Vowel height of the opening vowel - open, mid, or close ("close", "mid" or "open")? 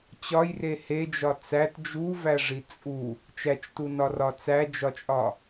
open